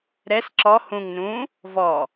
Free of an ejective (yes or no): yes